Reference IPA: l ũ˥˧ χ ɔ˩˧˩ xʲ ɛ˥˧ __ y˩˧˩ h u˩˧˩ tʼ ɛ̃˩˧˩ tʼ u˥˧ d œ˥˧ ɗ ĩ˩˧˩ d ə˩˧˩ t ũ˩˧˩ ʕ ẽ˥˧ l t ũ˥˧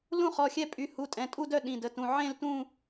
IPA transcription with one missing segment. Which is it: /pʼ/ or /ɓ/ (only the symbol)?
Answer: pʼ